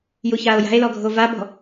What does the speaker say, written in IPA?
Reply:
juçaːo̯ja̤e̯lɔ ɡʱovabɔ̤

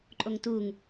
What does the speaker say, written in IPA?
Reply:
ǃʼoŋtuŋ

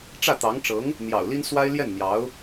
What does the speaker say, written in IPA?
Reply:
ʈ͡ʂä˥˩t̪ɑ˧˥ŋʈ͡ʂɤ˧˥ŋ | n̪jɑ̰˨˩ʊ̯li˥nswa˥ɪ̯ ljɛ˥˩nn̪jɑ˧˥ʊ̯

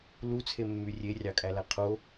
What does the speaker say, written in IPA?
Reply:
lut͡sʰemːy rʲerʲɑkʼælæ qʰo

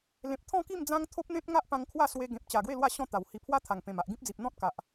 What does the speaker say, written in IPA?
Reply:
lẽ˨p̚t̪ʰɔ̃˥˧ki˥˧m d͡zã˦ŋ t̪ʰo˦p̚n̪ẽ˦t̚ŋa˦ʔ pã˧ŋkʰwa˥˧swe˧ ɡẽ˨p̚t͡ɕa˨˩ɡwe˥˧lwa˥˧ ɕɔ̃˥˧t̪a˨˩whi˧ pʰwa˦t̪ʰa˨˩ŋpẽ˨˩ma˨ʔ ɡĩ˦p̚d͡zi˨p̚n̪ɔ̃˦t̚ka˨ʔ

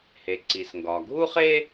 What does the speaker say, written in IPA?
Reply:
he˩ǀi˩sŋɡɒ˩ ɡʱu˥χe˥

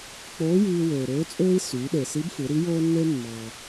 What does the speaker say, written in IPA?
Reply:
k͡poː˧˥jiː˧ wøː˩ɾøː˧˥t͡sʼøː˥i̯ syː˩˧ɗe˩si˧˥bfɯ˩˧ ɾi˧˥joː˥nːe˥ mːɑ˩

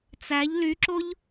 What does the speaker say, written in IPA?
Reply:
t͡sæʎ lyǁoʎ

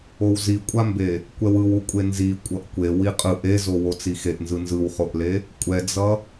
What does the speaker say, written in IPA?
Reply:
owzikʷʼambe | kʷɛwɯwukʷʼe nzi kʷʼʌʔkʷe wiqʼɯʔ ezowo t͡sixeʔnzɯ nzɯwχoʔle | kʷʼɛd͡zʌ

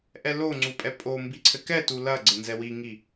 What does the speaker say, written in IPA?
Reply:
ʔɛloŋ͡ǀupʼɛ pʼombiǀʰɘ kɛtu lɐɡ͡ǀɘ nzɛwiŋi

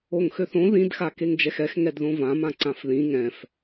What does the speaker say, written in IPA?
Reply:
oŋxøθõ ðĩdxa keŋd͡ʒɛxɛx ŋɛdðõvãmã ǀãfðĩ ŋɛ̃f

